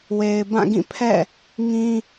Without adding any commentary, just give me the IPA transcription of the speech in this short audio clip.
w e˨ ɪ̯ b ã˦˨ ɡ ĩ˦˨ pʰ ɛ̰˦˨ | ŋ ĩ˦

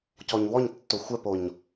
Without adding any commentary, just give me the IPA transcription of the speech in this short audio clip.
c ɔ ɲ w ɔ ɲ tː o xʷ ɛ p o ɲ

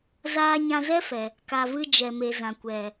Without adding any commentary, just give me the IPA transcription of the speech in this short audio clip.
z aː˧ ɲ ã˧ z ɛ˦ f ɛ˨ | k a˨ v ɨ˧ d͡ʒ ɛ˨ m e˨ z ã˨ kʷ ɛ˨

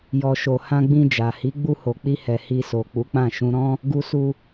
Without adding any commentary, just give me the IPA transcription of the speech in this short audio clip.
j ɔ˨ ʃ o˨ h ã˧ ɡ͡b ĩ˧ d͡ʒ a˨ h i˨˦ ɡ͡b u˧ h o˨ k͡p i˧ h ɛ˨ h i˧ s o˨ k͡p u˨˦ k͡p ã˦˨ ʃ ũ˧ ɾ ɔ̃˦ | ɡ u˧ s u˧

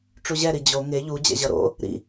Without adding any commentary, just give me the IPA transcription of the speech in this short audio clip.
ʈ͡ʂ u ʑ ɛ ɾ i d͡ʑ o ŋ e ʎ u d͡ʑ ɛ̰ ʑ ʌ ɾ o̰ | ɾ ḭ

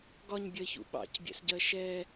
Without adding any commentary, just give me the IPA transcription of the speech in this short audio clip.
ɡ ɒ ɲ bʲ ɜ ç ṵ ɓ ɑ̰ c bʲ ɛ̰ s ɟ ɜ ʃ ɛ

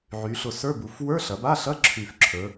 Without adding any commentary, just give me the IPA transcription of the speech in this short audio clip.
ʕ y˩˧ ɬ ʊ˨˩ s ə˞˧˥˧ b u˩˧ f w ə˞˧˥˧ ɬ ɐ˩˧ b a˧˥˧ ɬ ɐ˧˥˧ ǁʰ y˨˩ f ǁʰ ə˞˩˧

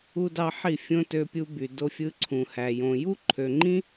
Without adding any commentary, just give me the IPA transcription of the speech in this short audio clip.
u˦ d ɑ˦ ħ i˦˨ fʲ õ˦ t ø˧ pʲ u˧ b y˨ d o˧ fʲ ɯ˧ ǀʰ ũ˨ h æ˨ j õ˨ j u˦ ǃʰ ø˨ ŋ͡ǃ ĩ˦

